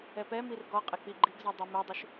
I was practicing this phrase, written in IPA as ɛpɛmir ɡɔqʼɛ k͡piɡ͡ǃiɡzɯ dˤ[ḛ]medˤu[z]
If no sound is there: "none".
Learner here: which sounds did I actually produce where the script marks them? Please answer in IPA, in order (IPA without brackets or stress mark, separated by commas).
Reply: e, ʃ